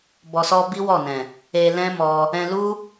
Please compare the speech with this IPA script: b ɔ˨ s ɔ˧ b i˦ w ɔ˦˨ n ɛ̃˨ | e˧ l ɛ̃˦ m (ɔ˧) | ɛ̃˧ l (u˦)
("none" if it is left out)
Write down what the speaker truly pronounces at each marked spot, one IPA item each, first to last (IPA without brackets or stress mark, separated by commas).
ɔ˧, u˦